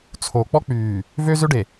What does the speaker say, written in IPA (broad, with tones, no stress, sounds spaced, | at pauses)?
t͡sʰ o˨ k͡p ɔ˦ k͡p yː˨ | v ø˦ z ø˦ ɖ e˨